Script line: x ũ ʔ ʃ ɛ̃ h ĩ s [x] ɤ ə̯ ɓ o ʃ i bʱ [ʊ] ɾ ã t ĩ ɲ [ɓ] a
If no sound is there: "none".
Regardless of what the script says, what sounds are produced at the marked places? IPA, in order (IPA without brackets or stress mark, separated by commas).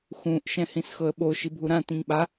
x, u, ɓ